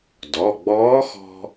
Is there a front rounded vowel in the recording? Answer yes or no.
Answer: no